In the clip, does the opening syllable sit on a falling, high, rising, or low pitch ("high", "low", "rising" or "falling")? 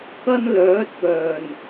high